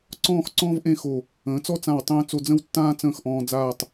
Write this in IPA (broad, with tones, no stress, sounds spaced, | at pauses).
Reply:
ǀ ɔ̃ː˥˧ x ǀ ɔ̃ː˥ v ʔ ẽ˥˧ x o˧˩ | ə̃ː˩˧ t͡s ɔ˥˧ t͡s ã˧˩ w tˤ ə̃ː˥ t͡s o˧ d͡z ə̃˥˧ w tː ãː˥ t͡s ə̃ː˥˧ x ʔ ɔ̃ː˧ d͡z aː˥˧ tˤ